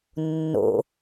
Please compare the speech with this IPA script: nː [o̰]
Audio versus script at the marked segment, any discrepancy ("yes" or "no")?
no